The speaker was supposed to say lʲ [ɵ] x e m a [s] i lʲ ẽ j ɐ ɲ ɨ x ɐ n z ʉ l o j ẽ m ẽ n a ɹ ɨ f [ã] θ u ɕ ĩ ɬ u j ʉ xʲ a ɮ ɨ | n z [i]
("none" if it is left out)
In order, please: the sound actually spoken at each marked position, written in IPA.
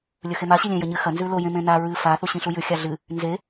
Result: ɵ, ɕ, a, e

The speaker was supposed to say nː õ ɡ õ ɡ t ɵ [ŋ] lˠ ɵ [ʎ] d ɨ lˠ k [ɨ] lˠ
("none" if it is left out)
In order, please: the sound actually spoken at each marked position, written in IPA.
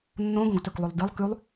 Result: k, lˠ, ʉ

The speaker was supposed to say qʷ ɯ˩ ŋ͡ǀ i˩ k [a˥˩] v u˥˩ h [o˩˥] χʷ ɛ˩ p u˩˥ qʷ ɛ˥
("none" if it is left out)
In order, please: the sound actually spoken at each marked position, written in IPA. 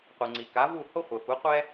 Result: a˩˥, o˥

